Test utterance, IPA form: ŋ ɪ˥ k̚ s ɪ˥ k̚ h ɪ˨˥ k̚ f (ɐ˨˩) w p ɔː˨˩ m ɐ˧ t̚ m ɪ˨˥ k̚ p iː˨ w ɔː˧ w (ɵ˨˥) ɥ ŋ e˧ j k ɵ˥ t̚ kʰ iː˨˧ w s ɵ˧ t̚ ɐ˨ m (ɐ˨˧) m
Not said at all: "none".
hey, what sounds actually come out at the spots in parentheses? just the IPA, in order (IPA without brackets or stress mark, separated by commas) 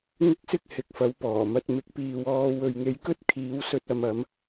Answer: ɐ˨˥, ɵ˨, ɐ˨˧